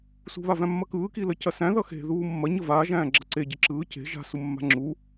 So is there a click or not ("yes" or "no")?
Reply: yes